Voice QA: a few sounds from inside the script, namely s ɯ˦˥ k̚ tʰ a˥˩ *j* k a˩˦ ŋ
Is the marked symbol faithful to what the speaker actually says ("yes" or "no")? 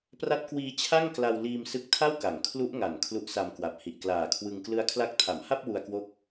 no